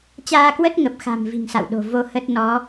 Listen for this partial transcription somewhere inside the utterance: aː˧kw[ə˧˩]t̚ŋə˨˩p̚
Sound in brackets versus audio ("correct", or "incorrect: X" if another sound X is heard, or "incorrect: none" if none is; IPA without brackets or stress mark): incorrect: ə˦˥